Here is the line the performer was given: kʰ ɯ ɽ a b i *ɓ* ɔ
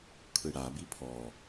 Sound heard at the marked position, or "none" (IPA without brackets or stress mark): pʰ